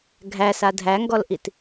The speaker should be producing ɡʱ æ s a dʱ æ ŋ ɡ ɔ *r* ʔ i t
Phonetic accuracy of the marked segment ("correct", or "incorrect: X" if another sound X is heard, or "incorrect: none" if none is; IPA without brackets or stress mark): incorrect: l